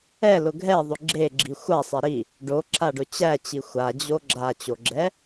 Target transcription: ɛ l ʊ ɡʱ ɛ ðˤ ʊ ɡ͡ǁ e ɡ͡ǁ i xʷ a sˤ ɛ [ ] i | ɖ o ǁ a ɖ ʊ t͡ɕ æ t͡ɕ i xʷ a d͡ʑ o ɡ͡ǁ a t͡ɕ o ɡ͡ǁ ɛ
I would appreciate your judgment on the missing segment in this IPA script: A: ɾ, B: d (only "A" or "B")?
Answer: A